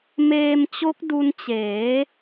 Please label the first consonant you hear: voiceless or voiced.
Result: voiced